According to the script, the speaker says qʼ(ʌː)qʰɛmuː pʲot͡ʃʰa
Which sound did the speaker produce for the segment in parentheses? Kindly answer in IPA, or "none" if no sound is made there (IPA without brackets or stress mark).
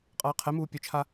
ʌː